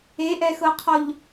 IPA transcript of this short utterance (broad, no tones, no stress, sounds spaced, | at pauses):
e ʔ ɛ x ɤ qʰ ɔ ʎ